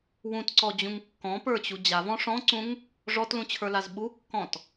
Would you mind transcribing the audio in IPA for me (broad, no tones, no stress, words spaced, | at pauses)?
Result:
wũtǀɔd͡ʑũŋ kːɔ̃pə˞t͡ɕu d͡ʑavɔ̃ ʂɔ̃ǀũŋ | ʐɔtlũt͡ɕʰə˞laz ɓukːɔ̃t